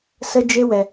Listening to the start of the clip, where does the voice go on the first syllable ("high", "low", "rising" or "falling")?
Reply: high